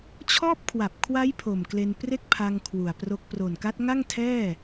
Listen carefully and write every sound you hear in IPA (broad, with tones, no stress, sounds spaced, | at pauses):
t͡ɕʰ ɔː˥˩ p̚ kʰ w a˨˩ p̚ kʰ w a˦˥ j pʰ o˨˩ m k l e˧ n p r e˥˩ k̚ pʰ a˧ ŋ kʰ w u˨˩ a̯ p r o˦˥ k̚ p r o˨˩ n k a˦˥ t̚ ŋ a˥˩ ŋ tʰ ɛː˥˩